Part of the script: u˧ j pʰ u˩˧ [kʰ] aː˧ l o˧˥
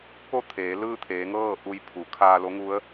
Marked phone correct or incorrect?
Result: correct